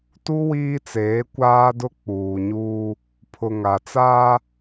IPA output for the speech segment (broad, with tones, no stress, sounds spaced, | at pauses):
t u˦ w iː˦ t͡s eː˨˦ kʷ aː˦ d ʊ˦ k͡p uː˨ ɲ uː˦ | pʰ ʊ˨ ŋ a˨ t͡s aː˦